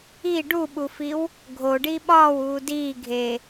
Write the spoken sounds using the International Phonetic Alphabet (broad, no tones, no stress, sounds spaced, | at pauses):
i ɖ u ɓ u f i w | ɡʱ o ɖ i ɓ ɒː w uː d iː ɡʱ eː